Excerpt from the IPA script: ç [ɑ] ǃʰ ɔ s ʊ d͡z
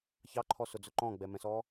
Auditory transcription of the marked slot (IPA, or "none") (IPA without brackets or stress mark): ɑ